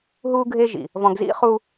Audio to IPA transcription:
ɦ u˦ ɡʱ e˦ ʒ ḭ˨ | v ɔ̃˨ ɡ z ḭ˦ χ u˦

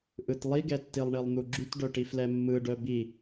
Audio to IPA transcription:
ʔ ɯ t lˠ i ɡ ɛ tː i lˠ ɳ i lˠ n̪ u ɡ͡ǁ y t ɖ œ ʈ i f l ɛ mː ɯ ɖ œ b i

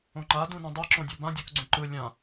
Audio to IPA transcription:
õ ŋ͡ǃ a d ũ n õ dˤ ɯ ǁ õ dʲ o b ã dʲ o k ɡ͡ǀ ũ ǃ ɯ lʲ ã

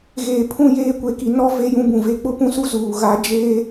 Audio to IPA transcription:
ɣ eː˨ pʰ ũ˦˨ j eː˦ kʷ e˨ k i˨˦ n ɔ˦ v e˦ j ũ˦ b ũ˨ v e˦ k͡p ʊ˦ p ũ˦ s u˦ z uː˨ ɣ a˨˦ d͡ʒ eː˦

